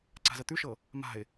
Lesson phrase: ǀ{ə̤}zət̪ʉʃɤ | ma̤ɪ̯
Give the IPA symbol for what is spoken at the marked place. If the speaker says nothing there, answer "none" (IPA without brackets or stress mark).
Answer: a̤